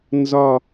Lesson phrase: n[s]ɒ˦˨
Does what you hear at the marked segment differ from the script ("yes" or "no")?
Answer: yes